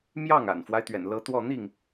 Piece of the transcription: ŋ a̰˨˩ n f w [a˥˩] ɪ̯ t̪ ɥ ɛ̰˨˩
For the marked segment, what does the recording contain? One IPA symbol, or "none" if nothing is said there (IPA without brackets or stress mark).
a˦